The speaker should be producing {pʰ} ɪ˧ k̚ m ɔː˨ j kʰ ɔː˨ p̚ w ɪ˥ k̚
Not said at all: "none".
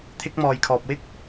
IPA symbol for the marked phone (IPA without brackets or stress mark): t̪ʰ